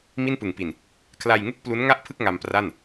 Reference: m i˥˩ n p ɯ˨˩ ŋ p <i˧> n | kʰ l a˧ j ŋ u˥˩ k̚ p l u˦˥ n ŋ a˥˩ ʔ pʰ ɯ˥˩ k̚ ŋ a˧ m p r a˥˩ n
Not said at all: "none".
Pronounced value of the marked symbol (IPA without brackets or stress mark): i˨˩